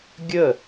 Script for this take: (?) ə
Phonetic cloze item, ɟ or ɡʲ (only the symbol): ɡʲ